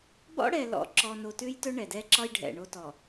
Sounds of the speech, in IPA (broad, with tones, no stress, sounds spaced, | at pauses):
b ɔ̰˦ ɽ ɛ˨ l ɔ̰˨ ǁ ɔ˨ n o˨ t ʉ˦ j t ɵ˦ ɳ ɛ˨ d ɛ˦ ǁ ɒ˦ j ɖʱ ɛ̰˨ ɳ o˦ t ɔ˨